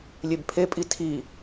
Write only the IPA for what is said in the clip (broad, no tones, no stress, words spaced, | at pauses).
lʲebpʰepʼi tʰi